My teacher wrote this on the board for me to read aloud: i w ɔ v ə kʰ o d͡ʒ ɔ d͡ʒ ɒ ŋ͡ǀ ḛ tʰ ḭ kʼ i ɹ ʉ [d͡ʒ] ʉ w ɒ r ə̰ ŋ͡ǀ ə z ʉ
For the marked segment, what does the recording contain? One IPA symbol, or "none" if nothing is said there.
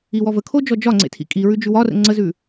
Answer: d͡ʒ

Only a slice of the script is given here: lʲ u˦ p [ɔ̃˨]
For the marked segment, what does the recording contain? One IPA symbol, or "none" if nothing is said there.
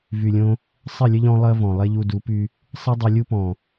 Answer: ɔ̃˨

